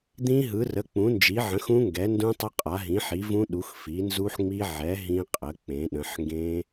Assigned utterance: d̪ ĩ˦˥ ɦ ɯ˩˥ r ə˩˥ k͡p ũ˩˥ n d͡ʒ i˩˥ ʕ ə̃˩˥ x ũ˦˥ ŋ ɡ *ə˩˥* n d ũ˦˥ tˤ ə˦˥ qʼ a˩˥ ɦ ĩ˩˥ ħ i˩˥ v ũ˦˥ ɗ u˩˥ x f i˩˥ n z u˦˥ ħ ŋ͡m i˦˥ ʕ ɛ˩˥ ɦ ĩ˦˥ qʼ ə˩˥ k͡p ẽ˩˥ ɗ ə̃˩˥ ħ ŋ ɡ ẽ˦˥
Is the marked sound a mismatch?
yes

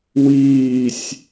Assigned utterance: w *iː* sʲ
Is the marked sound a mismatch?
no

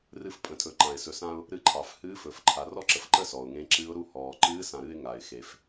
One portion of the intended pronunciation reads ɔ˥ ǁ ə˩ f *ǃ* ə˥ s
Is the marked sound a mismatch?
no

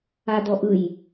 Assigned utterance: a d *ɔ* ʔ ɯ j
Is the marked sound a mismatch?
no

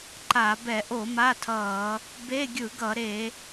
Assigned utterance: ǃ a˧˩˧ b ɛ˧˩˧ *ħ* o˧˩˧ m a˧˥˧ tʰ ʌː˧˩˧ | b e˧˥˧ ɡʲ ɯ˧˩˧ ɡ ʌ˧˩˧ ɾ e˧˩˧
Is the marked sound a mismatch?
yes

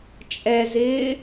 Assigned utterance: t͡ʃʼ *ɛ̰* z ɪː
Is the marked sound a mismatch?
yes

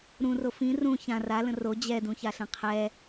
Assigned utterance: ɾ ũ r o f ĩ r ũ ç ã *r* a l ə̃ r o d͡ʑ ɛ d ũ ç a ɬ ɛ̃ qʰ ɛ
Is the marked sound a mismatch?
no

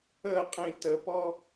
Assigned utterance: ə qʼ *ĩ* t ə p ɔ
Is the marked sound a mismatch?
no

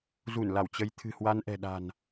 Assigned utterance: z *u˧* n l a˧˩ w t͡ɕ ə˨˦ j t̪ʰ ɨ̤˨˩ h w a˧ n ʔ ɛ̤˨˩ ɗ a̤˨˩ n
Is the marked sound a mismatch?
yes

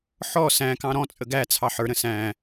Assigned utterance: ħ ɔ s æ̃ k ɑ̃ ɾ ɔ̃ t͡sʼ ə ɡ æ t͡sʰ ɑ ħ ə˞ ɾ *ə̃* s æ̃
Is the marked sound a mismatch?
no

